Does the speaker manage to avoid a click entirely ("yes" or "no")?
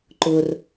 no